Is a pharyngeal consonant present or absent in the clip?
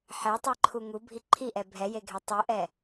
present